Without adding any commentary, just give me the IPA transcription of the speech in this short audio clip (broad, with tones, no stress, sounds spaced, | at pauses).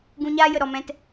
ɡ ũ˧ ɲ aː˦ j ə˨ ɾ ɔ˨ m ɛ̃˧ t